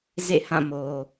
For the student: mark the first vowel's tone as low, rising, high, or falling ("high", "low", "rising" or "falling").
falling